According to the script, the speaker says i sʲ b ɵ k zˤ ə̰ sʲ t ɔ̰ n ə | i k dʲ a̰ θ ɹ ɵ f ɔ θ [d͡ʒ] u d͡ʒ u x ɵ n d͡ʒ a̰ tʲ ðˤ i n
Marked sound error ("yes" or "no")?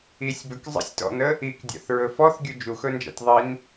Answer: yes